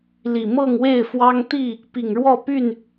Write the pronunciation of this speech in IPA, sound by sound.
l i˨˩ m ɤ˥˨ ŋ w e˥˨ ɪ̯ f w ɑ˦ ŋ t̪ i˥˨ | p i˨˩ ŋ ɻ w ɔ˥˨ p y˥˨ n

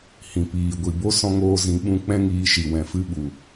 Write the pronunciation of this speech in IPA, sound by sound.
h ĩ˨ p iː˨ ɡʷ i˨ b o˦ s ɔ̃˧ ŋ oː˧ z ĩ˨˦ ɓ ũ˧ k͡p ɛ̃˦ ŋ iː˧ ʃ i˨ w ɛ̃˨ f ɨ˧ ɓ u˨

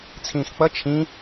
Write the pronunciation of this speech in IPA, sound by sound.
t͡sʰ ĩː x k͡p ʌ t͡ʃʰ ĩ

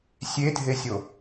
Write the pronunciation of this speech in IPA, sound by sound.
sʲ e dʱ e sʲ o

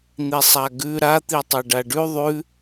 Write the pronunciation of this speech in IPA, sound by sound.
n̪ i sˤ a ɡ ʉ ɾ a t̪ i tˤ a ɖ a ɖ ʉ ðˤ ʉ

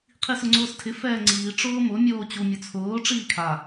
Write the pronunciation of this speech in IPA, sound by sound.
qʰ i s ʊ ŋ͡ǀ ʊː s tʰ ɪ f ɛː ŋ͡ǀ iː ʈ͡ʂ ʊː m ʊ mʲ oː t͡ɕ u mʲ ʊ t͡sʰ ʊː ʈ͡ʂ iː kʰ a

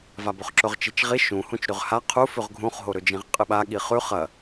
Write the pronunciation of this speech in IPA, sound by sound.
v a b ɵ χ ǁ ɵ ʁ t͡ʃ i t͡ʃ ʁ i ʃ ũ h ũ t͡ʃ ɾ ʉ ʁ h a qʰ u f ʉ ʁ ɡʱ ũ χ ɦ o ɾ ɵ d͡ʒ ĩ ʁ qʼ ɨ ɓ a ɠ i χ ʉ χ ɐ

